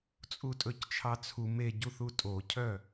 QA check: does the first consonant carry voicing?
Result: no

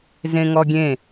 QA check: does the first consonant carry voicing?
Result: yes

